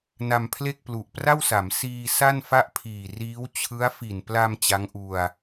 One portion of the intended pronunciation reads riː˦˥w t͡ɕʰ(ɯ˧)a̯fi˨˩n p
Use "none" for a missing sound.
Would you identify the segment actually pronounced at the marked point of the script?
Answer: ɯ˦˥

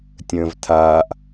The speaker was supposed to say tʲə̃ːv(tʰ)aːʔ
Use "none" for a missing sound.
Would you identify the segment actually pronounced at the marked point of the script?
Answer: tʰ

